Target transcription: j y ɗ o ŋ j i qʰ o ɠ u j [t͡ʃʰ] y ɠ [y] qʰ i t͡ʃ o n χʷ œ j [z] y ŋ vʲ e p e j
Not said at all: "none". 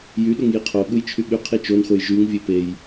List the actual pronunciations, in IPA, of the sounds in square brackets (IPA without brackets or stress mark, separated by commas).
t͡ʃʰ, y, ʒ